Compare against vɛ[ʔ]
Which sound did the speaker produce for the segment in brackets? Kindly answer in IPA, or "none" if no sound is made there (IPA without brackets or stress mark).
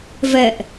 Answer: ʔ